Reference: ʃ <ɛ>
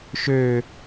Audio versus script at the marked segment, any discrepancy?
yes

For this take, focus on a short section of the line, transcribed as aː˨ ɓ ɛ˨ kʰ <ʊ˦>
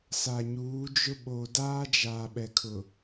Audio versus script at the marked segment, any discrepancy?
yes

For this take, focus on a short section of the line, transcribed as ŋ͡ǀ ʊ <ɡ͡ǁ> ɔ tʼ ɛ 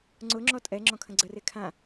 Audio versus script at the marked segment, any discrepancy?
yes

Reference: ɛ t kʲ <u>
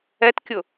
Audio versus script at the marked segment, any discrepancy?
yes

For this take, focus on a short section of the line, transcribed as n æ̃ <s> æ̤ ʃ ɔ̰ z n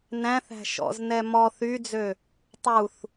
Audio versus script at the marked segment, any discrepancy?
yes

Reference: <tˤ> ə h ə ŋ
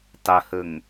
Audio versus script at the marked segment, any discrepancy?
no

